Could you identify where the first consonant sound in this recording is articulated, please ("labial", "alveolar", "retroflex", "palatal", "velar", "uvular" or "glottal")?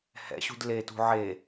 glottal